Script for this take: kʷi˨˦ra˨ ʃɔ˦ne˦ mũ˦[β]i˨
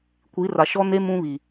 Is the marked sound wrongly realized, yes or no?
no